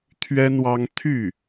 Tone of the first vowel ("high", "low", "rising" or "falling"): high